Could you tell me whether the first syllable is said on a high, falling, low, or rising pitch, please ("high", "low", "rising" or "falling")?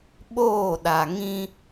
falling